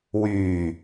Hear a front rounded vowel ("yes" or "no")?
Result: yes